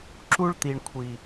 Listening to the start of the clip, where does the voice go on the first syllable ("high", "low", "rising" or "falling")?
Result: high